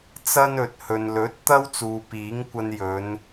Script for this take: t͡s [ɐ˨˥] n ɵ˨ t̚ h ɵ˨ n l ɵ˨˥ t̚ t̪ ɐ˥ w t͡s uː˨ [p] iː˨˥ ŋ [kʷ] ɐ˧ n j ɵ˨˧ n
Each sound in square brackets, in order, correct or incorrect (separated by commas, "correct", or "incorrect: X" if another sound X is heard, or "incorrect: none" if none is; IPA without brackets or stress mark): incorrect: ɐ˥, correct, correct